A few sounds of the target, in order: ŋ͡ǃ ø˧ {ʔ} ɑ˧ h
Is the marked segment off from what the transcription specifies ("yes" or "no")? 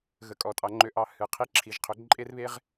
no